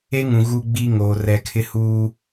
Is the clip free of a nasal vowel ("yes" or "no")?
no